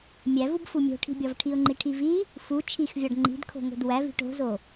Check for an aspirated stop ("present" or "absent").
present